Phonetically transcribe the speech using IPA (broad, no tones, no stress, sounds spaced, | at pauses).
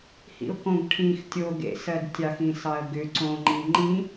h ḭ ʊ̯ k õ ɡ ʈʰ ĩ x tʲ o ɡ ḛ s ɜ d tʲ ɑ x ĩ s ɑ ə̯ ɡ ʏ ǀ õ ŋ͡ǃ i ŋ͡ǃ ĩ